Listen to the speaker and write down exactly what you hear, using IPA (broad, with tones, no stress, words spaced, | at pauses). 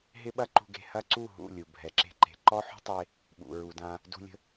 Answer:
ɦɪ˦ɓɐ˦ǃṳ˧ɡe̤˧ hɐ˦ǀu˦˨ ɦṵ˦˨ lʲu˨ bʱɛ˨ǁe̤˧ ǃe̤˨ǃɔ˦ ħṳ˦tˤe˧ | ɓṵ˨ɹu˨dã˧ | dṳ˧lʲə̤˧